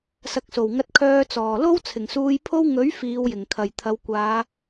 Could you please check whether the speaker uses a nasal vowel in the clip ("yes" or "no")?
no